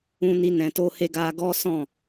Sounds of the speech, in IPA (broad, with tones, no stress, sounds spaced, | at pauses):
ũ˧ n i˧ n ɛ̃˨ t o˧ h e˧ ɡ a˧ ɡ ɔ˦ s ɔ̃˦˨